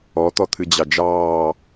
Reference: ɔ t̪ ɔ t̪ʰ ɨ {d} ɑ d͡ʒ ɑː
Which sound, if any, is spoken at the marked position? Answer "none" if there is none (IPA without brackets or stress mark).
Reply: d͡ʑ